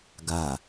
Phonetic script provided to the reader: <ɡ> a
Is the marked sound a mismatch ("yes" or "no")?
no